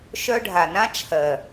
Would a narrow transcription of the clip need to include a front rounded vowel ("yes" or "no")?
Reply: yes